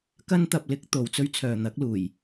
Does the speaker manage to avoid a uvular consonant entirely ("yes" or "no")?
yes